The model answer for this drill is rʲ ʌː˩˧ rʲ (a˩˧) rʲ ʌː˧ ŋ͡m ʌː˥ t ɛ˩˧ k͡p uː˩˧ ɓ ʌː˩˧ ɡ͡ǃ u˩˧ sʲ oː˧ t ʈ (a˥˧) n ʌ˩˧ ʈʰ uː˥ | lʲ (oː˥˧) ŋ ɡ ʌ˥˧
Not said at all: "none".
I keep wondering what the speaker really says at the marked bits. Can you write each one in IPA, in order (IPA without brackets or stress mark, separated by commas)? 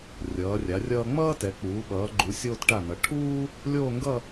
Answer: a˩˧, a˧˩, oː˥˧